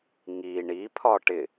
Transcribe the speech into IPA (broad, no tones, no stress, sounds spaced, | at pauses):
ŋ i ɳ i pʰ ɒ ʈ ɪ